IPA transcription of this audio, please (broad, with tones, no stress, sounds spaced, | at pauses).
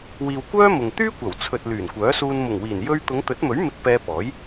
w iː˨ w kʷ œː˥ m ʊ˨ ŋ t̪ yː˥ kʷ ɐ˨˩ w t͡sʰ ɵ˨ t̚ l yː˨˩ n kʷ œː˨˥ s uː˧ n m ʊ˨˩ ŋ w iː˨˩ n j ɵ˥ ɥ t̪ ʊ˨˧ ŋ t̪ ɵ˨˥ t̚ m ɵ˨˥ ɥ m ɪ˧ k̚ p ɛː˧ p ɔː˨˥ j